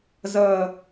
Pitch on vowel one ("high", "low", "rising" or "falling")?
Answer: low